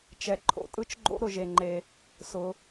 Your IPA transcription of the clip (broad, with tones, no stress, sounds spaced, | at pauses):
t͡ʃ ɛ˩ ǃʰ o̰˩ tʼ ɯ˥ t͡ʃ ɡ͡ǃ o̰˥ ɾ ʊ˩ ʒ e˩ ŋ͡ǃ e˩ | s ʊ˩